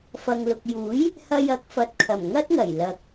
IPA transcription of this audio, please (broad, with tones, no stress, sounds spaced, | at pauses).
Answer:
f ɐ˨ ŋ l ʊ˨ k̚ j uː˨˥ j | h ɐ˧ j ɐ˨˥ k̚ f ɐ˨ t̚ kʰ ɐ˨˩ m ŋ ɐ˥ t̚ ŋ ɐ˨˩ j l ɐ˨ k̚